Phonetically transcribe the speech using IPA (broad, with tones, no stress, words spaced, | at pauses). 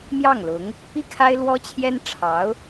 mjɑ˥˩ŋlʊ˧˥ŋ | pi˥˩kʰa˥ɪ̯lwɔ˥t͡ɕʰjɛ˥n ʈ͡ʂʰɑ˧˥ʊ̯